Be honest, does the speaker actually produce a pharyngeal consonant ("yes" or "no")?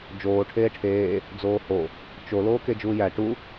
no